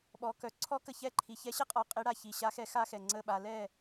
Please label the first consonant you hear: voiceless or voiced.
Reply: voiced